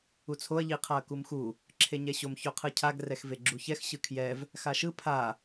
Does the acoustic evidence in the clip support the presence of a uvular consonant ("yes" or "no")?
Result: yes